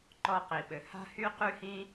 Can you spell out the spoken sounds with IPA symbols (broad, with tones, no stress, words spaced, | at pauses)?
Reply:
ǃɔ˧qi˨ɓɘ˨ ha̤˦hy˦ qy˦hĩ˦